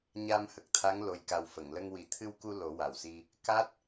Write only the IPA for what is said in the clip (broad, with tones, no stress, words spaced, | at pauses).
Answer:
ɲa˧mhə˨˩k̚t̪ʰa˧˥ŋ lo˨˩jka˨˩w fə˨˩˨ŋlə˧ŋwi˨˩˦ t̪ʰɨ˧wku˧ lo˨˩˦wa˨˩wsi˧ | ka˦˥t̚